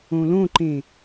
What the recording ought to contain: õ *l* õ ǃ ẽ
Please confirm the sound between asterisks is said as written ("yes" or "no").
yes